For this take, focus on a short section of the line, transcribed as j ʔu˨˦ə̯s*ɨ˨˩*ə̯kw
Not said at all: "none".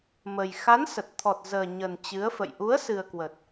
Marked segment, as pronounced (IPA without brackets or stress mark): ɨ˨˩